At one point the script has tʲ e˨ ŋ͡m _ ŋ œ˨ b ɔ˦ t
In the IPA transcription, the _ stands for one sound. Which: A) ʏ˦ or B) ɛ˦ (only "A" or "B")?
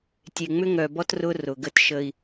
A